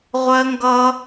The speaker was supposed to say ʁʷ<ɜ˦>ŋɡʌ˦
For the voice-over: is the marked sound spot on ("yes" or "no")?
yes